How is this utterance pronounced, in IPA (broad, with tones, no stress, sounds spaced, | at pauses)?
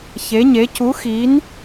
ç e˧˥ ɲ e˧˥ c u˧˥ x i˧˥ n